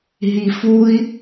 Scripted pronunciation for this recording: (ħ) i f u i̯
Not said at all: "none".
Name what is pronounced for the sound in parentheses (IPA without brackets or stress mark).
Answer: ɦ